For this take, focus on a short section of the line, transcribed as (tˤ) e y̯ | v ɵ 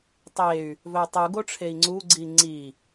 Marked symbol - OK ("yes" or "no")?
yes